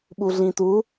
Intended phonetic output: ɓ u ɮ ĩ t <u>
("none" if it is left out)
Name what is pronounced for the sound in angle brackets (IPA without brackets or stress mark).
u